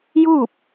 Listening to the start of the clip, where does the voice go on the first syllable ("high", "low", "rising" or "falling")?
falling